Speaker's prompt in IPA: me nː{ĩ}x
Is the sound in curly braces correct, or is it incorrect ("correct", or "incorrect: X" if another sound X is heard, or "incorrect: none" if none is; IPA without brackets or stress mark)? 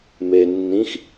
correct